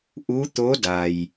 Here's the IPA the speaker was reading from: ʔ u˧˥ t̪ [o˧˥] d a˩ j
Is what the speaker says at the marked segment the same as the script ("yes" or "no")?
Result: yes